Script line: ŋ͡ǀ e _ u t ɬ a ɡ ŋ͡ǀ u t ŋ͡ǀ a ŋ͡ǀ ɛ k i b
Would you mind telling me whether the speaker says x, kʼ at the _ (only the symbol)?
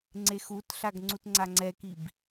x